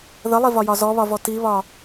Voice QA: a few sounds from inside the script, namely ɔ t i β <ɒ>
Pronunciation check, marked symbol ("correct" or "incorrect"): correct